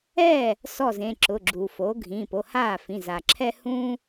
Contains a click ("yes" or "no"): yes